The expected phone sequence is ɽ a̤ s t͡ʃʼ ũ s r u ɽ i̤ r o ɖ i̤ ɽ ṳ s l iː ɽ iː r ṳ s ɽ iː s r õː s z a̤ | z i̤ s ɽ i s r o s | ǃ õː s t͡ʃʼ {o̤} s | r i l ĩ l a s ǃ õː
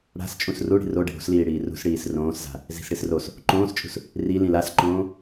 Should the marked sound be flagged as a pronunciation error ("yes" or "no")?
yes